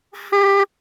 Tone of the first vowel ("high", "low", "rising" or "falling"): high